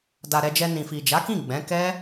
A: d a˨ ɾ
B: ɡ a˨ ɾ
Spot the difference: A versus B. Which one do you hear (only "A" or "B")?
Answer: A